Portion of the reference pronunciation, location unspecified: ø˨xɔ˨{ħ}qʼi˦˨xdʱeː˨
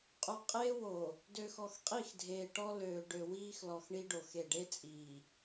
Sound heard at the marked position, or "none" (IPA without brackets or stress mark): x